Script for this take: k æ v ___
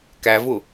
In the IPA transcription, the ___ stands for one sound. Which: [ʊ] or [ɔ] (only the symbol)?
ʊ